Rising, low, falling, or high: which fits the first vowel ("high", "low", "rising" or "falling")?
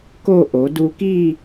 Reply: falling